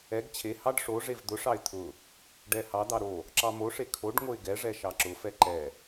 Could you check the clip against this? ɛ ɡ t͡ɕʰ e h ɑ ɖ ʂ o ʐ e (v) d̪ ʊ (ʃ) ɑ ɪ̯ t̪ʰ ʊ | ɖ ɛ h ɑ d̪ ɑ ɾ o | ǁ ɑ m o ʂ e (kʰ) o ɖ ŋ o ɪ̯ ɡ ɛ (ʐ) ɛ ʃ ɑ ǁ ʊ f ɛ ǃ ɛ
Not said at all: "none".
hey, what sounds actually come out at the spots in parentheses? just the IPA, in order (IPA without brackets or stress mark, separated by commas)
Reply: v, ʂ, kʰ, ʐ